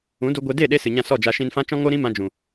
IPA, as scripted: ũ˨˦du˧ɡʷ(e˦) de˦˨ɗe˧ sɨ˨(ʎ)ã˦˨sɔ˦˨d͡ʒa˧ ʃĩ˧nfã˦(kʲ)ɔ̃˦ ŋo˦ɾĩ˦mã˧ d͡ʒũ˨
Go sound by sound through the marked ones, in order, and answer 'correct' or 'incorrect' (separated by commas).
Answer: incorrect, incorrect, incorrect